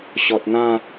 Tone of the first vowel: low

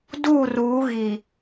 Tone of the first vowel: falling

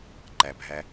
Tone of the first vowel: low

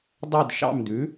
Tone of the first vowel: falling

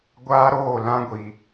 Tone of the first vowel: high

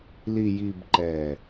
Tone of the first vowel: low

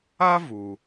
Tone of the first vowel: high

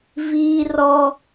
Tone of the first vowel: high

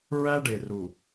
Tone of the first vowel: high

